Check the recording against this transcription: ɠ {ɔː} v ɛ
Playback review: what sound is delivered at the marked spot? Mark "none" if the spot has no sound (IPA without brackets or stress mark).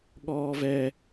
ɔː